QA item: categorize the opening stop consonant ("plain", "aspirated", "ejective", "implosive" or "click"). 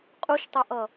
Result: ejective